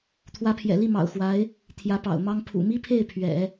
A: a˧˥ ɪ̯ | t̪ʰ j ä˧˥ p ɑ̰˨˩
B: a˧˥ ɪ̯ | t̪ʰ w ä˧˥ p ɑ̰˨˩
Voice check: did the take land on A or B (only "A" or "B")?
A